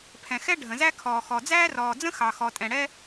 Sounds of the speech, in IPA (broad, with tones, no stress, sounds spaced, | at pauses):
pʰ ɛ̃˩ x ɛ˥ ɖʱ ə̃˩ z æ˥ kʰ ɔː˩ x ɔ˩ d͡z æː˥ r ɔː˩ d͡z ə̃˥ x ɑ˩ x ɔ˩ tʼ ɛ̃˩ ɽ ɛ˥